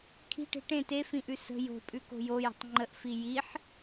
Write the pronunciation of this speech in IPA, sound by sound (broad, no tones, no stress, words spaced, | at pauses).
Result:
kʰi̤ʈe̤ ʈẽ tefĩʔʉ sə̤ jo̤pʼʉko̤ jojə̤tˤ ŋ͡ǃəʔfi jiħ